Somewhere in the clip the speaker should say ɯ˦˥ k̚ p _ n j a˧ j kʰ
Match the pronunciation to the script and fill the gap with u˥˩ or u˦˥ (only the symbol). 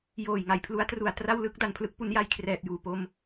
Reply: u˦˥